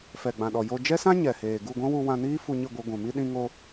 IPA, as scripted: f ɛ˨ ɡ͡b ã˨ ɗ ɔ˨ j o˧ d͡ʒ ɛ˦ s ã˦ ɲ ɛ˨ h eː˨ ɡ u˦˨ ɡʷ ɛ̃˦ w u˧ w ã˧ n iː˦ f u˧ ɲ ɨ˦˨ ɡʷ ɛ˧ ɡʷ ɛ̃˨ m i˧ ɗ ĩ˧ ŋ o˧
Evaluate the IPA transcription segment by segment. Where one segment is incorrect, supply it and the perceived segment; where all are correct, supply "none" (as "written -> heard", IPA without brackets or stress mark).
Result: none